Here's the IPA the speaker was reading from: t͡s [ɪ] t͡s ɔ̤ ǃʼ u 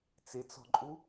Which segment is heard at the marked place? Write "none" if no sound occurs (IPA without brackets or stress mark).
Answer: ɪ